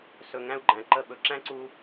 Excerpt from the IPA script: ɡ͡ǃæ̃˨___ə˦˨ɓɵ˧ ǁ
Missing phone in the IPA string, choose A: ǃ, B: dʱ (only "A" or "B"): A